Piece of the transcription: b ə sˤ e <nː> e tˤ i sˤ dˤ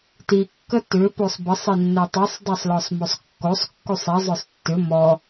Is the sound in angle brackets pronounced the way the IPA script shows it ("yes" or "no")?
yes